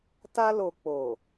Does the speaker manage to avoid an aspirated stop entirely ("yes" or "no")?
yes